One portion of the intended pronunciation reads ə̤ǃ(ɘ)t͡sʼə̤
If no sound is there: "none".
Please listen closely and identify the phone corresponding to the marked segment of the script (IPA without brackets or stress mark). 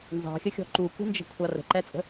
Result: ɛ